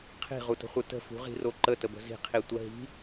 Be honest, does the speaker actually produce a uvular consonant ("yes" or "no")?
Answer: yes